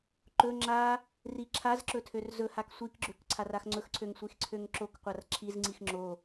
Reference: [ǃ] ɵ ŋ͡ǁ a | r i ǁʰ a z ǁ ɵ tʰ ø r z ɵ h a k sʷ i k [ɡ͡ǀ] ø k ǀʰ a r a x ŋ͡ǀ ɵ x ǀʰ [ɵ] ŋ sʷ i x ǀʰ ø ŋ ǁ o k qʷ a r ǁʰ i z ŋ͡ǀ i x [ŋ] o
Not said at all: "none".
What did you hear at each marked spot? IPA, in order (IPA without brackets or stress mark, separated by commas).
ǃ, ɡ͡ǁ, ø, ŋ͡ǁ